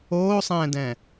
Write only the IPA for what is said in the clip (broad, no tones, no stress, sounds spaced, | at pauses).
oː sˤ ɛ̃ː d ɛ̃